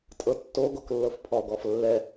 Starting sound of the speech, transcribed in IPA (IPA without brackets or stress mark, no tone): tʼ